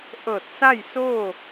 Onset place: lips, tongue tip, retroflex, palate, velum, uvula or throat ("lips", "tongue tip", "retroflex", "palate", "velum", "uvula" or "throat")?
throat